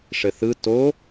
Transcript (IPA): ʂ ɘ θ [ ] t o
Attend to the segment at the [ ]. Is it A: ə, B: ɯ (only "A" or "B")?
B